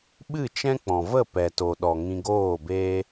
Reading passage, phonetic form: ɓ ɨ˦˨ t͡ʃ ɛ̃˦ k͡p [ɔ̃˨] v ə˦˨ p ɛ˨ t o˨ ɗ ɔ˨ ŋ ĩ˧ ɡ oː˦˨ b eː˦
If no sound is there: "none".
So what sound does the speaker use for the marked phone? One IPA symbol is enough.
ɔ̃˨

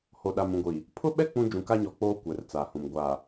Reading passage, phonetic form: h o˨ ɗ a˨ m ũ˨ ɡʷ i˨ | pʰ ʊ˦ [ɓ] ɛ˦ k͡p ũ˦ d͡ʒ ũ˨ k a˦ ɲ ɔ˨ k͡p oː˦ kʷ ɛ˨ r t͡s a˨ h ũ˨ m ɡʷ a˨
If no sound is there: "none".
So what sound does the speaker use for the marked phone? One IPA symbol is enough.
ɓ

